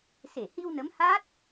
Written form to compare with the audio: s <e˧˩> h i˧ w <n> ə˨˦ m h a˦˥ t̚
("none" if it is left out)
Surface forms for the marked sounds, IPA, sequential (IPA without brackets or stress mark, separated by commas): e˧˩, n